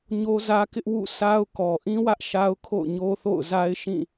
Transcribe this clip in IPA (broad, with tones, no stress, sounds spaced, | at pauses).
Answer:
ɲ o˦ z ä˦ k ɪ˦ ʔ w ṵ˦˨ sʰ a˦ ʊ̯ k ɔ˨ ʔ ĩ˦ w ä˦ ʔ ʃ a˦ ʊ̯ kʰ o̰˦˨ ʊ̯ ɲ o˦ θ o̰˦˨ ʊ̯ z a˦ ɪ̯ ʃ ĩ˦˨